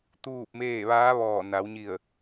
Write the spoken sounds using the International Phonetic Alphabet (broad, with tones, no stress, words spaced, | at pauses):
t̪uː˥˨p̚meː˥˨ ʋaː˧˥ʋɔː˧˩na˩˧wɲi˧˩ə̯